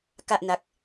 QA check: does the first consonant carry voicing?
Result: no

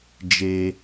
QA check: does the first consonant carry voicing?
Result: yes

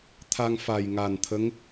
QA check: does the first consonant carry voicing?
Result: no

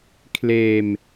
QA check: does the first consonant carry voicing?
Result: no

